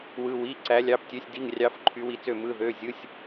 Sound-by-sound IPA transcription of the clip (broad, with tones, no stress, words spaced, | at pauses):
wɯ˧˥˧wi˧˥˧ ǀæ˧˥ lʲɑ˧˥˧ptʲø˧˥˧sʲ di˧˥˧ŋrʲɑ˧˥˧f ǃʰy˧˥wi˧˥t͡sø˥˨ mɯ˧˥˧ðø˧˥˧ zʲɯ˧˥˧sʲ